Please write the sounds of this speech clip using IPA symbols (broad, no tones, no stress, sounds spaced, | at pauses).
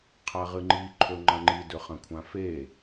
qʰ a ʁ ɨ ŋ͡ǃ i ǃʰ ɵ ŋ͡ǃ ɐ̃ ŋ͡ǃ i d ɵ χ ɐ̃ kʷʰ ã f e